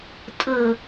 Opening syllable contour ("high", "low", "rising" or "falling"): low